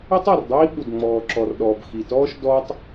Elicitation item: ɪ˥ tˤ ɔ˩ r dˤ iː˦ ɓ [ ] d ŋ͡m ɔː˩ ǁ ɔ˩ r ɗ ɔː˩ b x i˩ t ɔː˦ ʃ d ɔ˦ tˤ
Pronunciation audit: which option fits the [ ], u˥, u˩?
u˩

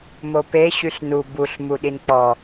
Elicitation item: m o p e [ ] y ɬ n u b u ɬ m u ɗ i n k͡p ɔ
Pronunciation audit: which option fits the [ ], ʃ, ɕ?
ɕ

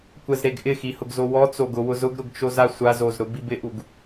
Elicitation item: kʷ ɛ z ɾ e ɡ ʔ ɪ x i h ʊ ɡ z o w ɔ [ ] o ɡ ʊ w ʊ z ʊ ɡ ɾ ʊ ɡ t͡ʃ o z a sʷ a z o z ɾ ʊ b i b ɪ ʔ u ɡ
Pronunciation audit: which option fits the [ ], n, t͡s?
t͡s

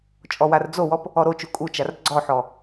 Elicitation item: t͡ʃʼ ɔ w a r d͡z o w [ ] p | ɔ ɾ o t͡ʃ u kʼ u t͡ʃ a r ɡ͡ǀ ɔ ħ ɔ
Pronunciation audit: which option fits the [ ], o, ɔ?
ɔ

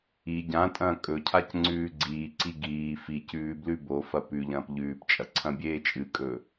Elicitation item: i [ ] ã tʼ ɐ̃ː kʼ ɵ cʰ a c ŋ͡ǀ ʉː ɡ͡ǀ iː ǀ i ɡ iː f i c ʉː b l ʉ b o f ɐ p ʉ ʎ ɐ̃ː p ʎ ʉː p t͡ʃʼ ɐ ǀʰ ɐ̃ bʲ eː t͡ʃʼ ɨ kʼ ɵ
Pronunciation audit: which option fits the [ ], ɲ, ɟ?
ɟ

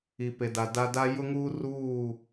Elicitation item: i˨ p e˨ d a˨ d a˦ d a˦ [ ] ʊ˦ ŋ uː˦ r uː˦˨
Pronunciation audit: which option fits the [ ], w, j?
j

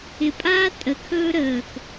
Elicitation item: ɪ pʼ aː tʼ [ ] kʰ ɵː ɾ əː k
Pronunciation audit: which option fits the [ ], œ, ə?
ə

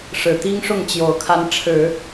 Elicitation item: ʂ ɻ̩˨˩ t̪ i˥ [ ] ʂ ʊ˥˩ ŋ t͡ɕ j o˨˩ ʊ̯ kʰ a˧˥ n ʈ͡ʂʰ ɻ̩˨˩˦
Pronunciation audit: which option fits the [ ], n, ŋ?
ŋ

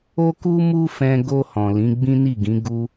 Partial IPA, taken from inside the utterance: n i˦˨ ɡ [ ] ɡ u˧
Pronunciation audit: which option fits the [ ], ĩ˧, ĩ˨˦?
ĩ˨˦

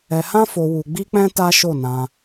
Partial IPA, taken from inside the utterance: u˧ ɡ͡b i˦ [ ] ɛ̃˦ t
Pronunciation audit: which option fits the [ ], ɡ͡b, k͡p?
k͡p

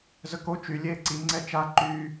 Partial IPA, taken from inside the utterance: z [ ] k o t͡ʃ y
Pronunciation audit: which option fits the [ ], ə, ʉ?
ə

